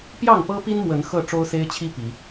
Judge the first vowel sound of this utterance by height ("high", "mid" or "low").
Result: low